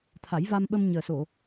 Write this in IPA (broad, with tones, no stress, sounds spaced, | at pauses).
t̪ʰ a˨˩˦ j v a˧ m ɓ ə˧ m ɲ əː˨˩ s o˨˩˨